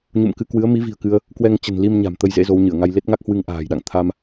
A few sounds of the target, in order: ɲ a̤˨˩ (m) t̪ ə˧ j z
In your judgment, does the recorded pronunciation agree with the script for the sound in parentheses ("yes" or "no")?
yes